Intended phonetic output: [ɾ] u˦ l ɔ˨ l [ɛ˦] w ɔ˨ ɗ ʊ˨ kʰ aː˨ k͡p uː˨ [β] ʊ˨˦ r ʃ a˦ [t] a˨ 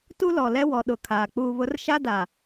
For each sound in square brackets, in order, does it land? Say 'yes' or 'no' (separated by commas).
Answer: no, yes, yes, no